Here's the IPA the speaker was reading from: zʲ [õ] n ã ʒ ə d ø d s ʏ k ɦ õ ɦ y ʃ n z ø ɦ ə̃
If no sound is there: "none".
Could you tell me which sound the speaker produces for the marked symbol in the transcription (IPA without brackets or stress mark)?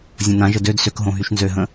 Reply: õ